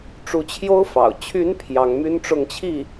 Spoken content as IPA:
ʈ͡ʂ u˧˥ t͡ɕʰ j o˥ ʊ̯ f ɑ̰˨˩ ʊ̯ t͡ɕʰ y˧˥ n pʰ j ɑ˧˥ ŋ m y˥ n ʈ͡ʂ ʊ˥˧ ŋ t͡ɕʰ i˥˩

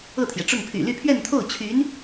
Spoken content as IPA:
ɤ˥˩ t̪ʰ j ɛ˩ ʈ͡ʂ ʊ˥˩ ŋ pʰ y̰˨˩ l y˥˧ pʰ ɥ ɛ˥˧ n t̪ʰ o˥˩ ʊ̯ t͡ɕʰ y˧˥ n

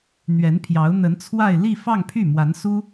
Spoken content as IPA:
n̪ ɥ ɛ˧˥ n pʰ j ɑ˧˥ ʊ̯ n̪ ə˧˥ n t͡sʰ w a˥˧ ɪ̯ l i˥˧ f ɑ˥˧ ŋ pʰ y˥˩ m w a˧˥ n s u˥

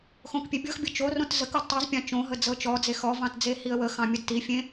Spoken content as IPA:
x õ k pʲ e bʲ ɤ x bʲ ɤ t͡ʃ o r õ t z ə k ɤ d tˤ i z pʲ ɑ̃ t͡ʃ õ ɦ ə d͡z ɤ t͡ʃ ɔ d͡z e x ɔ v ɑ̃ t d͡z e h i ə̯ w ə x ɑ̃ mʲ ə d t i fʲ ẽ

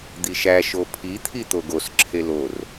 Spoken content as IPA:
d̪ i ʃ æ ʃ o pʰ i t̪ʰ i t̪ o ɡ o s ǁʰ e l o r

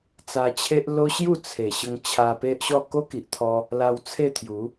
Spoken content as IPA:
t͡s a˧ t͡ɕʰ e˦ ʔ l o˦ ɕ j u˥˧ t͡sʰ e˨˩ ɕ ə˧ ŋ t͡ɕʰ a˧ p e˦ ʔ ɕ ɔ˥˧ k o˦ k i˨ ʔ t̪ʰ ɔ˧ | l a˧ w t͡sʰ e˥˧ t̪ʰ j u˨˦

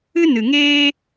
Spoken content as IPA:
ɨ˦ n ɨ˨ ŋ eː˦

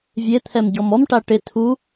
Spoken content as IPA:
vʲ e t̪ʰ ɛ m ɟ ɔ m ɔ m ʈ a ʈ ɪ tʰ u

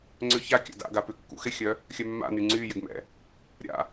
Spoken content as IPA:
ŋ͡ǀ ʏ ç a kʲ a̰ d a̰ ɡ a p ʏ kː ṵ x ɪ xʲ œ | xʲ œ mː a̰ n y ŋ͡ǀ y j ɪ ɡ m ɛ̰ | ɾʲ a̰

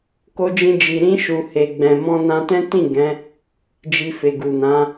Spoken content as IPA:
k o˧ d͡ʒ ĩ˧ d͡ʒ i˨ ɾ ĩ˧ ʃ u˨ h e˨ ɡ͡b ɛ̃˨ m ɔ̃˧ n ã˧ t ɛ̃˦ t ĩ˦˨ ɡ ɛ̃˨˦ | d͡ʒ i˧ f e˨ ɡ u˨ n ã˨˦

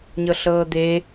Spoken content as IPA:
ɲ ɤ ɬ ɤː d̪ e

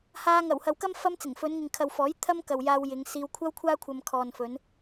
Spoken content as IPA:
h aː˧ ŋ ɐ˨˩ w h ɐ˨ w k ɐ˥ m f ɐ˥ m t͡s ɪ˨˩ ŋ f ɵ˨˧ n ŋ ɪ˨ ŋ kʰ ɐ˨ w f ɔː˨˥ j t̪ʰ ɐ˥ m k ɐ˨ w j aː˧ w j ɪ˨˧ ŋ s iː˧ w kʷʰ ɐ˥ w kʷʰ aː˥ kʷʰ ɐ˧ m kʰ ɔː˨ n f ɵ˨˧ n

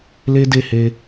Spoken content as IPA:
l e˦ d e˦˨ h e˧

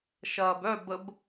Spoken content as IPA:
ʃ ɐː b œ b ə b

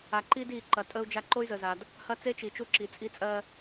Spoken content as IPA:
a˨ ǃ iː˦ d iː˨ ǃ ɐ˨ tʼ əː˦ u̯ d͡ʒ a˦ ǃ o˦ y̯ z ə˨ z a˨ d | h ɐ˦ t͡s e˦ t͡ʃ i˨ t͡ʃ u˦ ǁ i˨ t͡sʼ i˦ t͡sʼ ɜː˦

